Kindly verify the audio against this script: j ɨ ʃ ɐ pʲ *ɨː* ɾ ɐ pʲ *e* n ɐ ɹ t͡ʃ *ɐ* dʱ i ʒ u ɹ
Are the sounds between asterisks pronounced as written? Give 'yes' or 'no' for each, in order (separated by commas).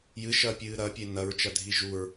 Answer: yes, yes, yes